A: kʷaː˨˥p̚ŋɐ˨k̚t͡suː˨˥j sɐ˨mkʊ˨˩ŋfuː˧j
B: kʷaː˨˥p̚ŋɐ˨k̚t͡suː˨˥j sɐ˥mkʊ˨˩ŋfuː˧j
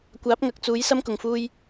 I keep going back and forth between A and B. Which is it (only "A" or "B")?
B